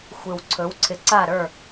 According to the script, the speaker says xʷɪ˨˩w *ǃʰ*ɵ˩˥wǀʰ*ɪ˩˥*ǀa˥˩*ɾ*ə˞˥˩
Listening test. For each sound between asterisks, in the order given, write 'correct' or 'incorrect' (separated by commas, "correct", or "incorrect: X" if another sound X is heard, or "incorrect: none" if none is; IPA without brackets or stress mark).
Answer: incorrect: ǀʰ, correct, correct